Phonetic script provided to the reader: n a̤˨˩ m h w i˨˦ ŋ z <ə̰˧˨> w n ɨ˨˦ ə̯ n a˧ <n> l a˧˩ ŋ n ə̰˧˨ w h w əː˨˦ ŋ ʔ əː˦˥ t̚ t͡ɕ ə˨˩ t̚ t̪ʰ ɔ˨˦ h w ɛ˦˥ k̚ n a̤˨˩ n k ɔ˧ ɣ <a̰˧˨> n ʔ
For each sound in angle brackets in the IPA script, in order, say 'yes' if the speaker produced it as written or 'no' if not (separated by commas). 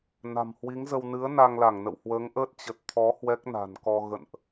no, no, no